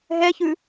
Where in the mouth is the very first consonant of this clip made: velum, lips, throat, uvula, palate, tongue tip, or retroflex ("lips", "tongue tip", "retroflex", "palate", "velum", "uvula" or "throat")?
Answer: throat